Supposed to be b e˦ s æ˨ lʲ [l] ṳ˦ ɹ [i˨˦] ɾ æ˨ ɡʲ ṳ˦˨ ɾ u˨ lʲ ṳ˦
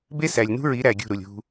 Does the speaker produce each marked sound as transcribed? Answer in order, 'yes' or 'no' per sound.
no, yes

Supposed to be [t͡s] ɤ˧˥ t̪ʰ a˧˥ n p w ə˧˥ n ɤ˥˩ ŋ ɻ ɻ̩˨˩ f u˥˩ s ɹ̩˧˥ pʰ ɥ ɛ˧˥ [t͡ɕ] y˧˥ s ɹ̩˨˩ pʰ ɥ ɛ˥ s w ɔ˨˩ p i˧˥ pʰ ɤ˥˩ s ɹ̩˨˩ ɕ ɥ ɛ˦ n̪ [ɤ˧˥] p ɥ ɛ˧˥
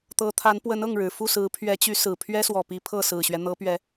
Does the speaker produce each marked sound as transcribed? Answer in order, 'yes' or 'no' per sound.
no, yes, yes

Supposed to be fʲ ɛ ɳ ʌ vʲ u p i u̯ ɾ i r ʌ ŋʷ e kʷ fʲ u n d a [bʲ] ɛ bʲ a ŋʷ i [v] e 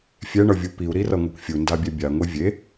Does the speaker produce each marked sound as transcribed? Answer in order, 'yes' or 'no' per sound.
yes, no

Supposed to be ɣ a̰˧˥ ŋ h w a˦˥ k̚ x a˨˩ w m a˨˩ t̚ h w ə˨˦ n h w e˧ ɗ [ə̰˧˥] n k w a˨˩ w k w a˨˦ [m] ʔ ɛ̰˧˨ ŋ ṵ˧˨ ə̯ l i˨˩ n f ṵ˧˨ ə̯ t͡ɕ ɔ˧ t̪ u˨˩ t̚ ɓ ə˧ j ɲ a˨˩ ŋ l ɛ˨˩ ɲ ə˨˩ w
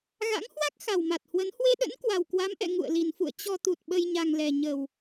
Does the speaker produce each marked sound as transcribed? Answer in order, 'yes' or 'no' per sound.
yes, yes

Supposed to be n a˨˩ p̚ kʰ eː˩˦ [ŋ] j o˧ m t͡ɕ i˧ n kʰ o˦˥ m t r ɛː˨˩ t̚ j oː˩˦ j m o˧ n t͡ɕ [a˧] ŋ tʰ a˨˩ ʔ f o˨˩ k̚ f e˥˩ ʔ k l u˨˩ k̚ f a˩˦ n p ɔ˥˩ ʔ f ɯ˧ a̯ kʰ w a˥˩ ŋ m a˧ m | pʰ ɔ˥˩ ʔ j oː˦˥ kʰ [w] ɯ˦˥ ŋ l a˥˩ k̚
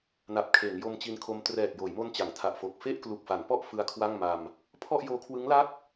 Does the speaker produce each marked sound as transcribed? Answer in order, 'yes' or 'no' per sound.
yes, no, yes

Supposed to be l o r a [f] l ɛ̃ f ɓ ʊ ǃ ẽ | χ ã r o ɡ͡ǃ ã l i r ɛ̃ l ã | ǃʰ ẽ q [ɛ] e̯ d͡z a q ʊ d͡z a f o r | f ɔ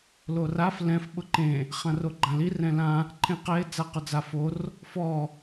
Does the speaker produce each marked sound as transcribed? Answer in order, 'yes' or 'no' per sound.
yes, yes

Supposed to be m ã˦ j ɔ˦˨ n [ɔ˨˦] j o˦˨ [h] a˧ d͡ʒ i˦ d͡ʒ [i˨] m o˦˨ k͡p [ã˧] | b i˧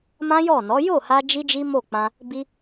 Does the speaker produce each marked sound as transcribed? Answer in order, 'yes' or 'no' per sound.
yes, yes, no, yes

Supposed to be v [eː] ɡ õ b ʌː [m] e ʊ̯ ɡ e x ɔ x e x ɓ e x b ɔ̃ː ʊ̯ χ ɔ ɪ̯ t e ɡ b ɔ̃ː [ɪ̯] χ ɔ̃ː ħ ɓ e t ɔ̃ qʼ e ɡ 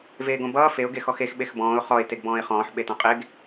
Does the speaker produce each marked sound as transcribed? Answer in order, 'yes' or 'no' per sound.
yes, no, yes

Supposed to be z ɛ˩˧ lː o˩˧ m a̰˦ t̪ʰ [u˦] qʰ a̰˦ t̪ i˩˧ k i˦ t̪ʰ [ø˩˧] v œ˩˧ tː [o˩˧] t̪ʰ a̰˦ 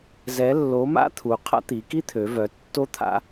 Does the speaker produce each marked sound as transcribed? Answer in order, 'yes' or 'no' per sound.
no, yes, no

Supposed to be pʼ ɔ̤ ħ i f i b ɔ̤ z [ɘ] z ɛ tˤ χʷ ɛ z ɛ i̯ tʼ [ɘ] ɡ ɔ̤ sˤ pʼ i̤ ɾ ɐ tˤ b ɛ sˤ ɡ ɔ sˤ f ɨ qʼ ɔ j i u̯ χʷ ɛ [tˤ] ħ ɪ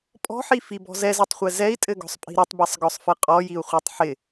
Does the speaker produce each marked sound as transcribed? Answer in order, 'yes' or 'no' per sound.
no, yes, yes

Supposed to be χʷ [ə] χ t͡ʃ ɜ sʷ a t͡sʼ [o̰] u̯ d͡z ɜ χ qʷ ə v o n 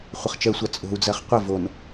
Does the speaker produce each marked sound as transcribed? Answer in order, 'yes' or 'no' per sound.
yes, no

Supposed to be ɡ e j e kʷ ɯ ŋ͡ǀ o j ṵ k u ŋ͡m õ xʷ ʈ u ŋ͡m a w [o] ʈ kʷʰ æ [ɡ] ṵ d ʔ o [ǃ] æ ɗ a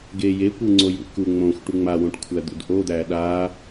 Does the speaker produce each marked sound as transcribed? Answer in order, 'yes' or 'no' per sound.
no, no, no

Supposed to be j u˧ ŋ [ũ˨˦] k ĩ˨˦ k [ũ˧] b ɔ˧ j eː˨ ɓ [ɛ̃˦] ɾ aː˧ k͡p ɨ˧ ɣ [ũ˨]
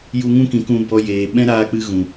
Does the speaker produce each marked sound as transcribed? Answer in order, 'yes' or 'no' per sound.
no, yes, yes, yes

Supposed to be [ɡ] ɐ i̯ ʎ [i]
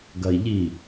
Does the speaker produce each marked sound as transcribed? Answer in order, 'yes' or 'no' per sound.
yes, yes

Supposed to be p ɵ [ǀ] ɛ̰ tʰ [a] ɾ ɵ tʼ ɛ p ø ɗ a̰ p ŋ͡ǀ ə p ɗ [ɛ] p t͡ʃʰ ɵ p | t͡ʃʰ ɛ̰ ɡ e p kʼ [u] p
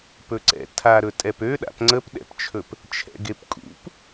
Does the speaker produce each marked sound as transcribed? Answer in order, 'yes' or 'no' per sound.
yes, yes, no, no

